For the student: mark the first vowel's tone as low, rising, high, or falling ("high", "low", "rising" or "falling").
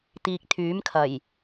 low